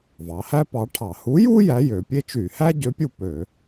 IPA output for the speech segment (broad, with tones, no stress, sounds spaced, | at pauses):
v ɑ˩˧ h æ˥ p ɑ˨˥ ʈʰ ɑ˧˩˧ h u˨˥ j u˥ j æ˨˥ j ø˩˧ pʲ e˥ t͡ʃ y˧˩˧ h æ˥ ɟ ø˨˥ pʲ u˦˨ p ø˧˩˧